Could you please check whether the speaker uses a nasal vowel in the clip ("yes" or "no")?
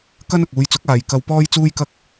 no